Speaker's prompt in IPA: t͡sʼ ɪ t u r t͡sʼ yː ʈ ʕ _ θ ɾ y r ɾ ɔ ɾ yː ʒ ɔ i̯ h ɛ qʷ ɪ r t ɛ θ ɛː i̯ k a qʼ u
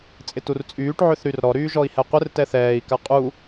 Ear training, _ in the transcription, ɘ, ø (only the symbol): ø